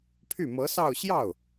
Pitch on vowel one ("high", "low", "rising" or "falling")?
falling